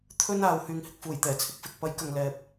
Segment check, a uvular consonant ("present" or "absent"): absent